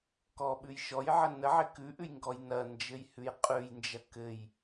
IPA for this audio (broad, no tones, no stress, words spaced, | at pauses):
kɔɓʉj ʃɔjʕə nəʕɪ kʉʔʉjŋɡɔj nɐnd͡ʒɘjhʉj qʼʉjnd͡ʒɐ kɘj